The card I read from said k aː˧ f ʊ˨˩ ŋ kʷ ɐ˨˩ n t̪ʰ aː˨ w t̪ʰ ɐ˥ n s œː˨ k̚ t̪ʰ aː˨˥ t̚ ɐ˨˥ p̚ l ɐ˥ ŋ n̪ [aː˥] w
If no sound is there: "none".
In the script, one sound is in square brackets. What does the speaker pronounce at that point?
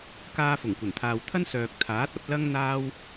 aː˥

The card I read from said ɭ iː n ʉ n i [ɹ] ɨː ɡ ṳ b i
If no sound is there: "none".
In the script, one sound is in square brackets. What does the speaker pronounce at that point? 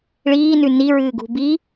ɹ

